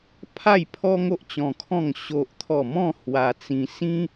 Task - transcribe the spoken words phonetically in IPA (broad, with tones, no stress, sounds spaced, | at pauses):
pʰ a˥˧ j pʰ ɔ˦ ŋ o˦ ʔ t͡ɕ ɔ̃˧ kʰ ɔ̃˥˧ ŋ ɕ o˦ ʔ t̪ʰ ɔ˥˧ m ɔ̃˥˧ h w a˧ t͡s ĩ˧ s ĩ˦